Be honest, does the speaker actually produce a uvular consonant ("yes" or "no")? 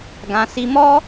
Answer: no